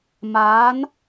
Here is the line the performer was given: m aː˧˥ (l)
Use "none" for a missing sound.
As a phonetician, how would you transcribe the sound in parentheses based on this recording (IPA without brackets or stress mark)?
n